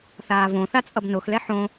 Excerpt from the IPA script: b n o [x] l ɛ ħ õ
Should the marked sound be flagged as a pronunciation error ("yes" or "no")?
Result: no